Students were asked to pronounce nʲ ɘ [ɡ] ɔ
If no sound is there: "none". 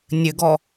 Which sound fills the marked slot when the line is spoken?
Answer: ɡ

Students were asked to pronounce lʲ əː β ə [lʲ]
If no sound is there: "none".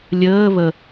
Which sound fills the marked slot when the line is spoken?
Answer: none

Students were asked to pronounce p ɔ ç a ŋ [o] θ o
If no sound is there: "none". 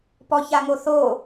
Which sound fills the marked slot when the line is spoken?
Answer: o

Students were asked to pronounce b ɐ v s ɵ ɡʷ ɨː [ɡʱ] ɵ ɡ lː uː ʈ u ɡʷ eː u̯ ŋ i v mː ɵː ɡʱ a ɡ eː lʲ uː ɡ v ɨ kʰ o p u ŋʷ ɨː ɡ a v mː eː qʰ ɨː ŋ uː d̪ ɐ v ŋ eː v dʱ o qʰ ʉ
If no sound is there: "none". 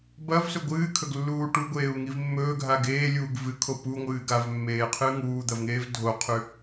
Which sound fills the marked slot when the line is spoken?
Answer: kʰ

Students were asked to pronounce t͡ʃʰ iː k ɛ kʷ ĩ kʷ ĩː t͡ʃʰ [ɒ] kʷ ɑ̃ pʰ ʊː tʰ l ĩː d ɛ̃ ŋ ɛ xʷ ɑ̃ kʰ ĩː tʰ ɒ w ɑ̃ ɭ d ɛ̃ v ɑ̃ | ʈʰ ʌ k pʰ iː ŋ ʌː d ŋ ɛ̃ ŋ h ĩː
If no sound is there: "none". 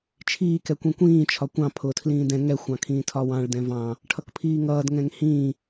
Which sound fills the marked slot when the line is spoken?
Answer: ɒ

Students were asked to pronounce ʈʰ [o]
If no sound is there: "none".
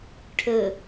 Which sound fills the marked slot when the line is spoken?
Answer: ɵ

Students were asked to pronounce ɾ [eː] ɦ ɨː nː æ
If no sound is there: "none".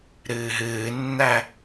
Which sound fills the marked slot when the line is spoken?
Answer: ɨː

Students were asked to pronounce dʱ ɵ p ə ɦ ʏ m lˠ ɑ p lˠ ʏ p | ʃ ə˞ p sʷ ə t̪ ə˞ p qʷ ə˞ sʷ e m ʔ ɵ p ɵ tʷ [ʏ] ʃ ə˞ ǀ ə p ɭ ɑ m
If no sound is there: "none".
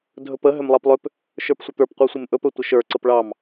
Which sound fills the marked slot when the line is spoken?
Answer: ə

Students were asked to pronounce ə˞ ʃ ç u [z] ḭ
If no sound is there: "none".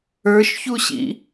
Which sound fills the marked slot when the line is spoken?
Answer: ɕ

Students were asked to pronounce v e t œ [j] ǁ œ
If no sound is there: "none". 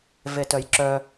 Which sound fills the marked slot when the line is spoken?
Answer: j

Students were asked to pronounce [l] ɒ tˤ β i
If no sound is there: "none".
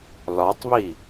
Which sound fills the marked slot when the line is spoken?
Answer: l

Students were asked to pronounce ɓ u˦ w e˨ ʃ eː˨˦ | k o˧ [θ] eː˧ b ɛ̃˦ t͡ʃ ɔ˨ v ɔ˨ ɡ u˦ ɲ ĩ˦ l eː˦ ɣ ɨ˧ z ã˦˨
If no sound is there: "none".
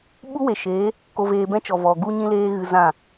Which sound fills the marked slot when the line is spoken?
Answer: v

